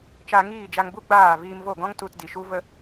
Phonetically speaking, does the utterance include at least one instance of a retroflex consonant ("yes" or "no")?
no